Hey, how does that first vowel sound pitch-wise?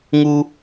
high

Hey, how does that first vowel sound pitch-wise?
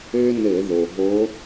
high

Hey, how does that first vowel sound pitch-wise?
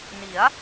rising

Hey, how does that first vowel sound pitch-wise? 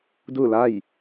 falling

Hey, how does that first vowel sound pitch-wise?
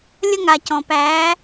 high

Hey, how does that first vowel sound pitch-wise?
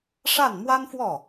falling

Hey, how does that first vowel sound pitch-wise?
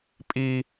high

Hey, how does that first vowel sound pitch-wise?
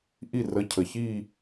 falling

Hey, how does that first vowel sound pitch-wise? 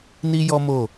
high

